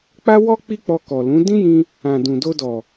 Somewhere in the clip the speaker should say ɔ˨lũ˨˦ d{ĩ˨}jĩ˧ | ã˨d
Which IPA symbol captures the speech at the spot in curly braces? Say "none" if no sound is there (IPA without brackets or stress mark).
ĩ˦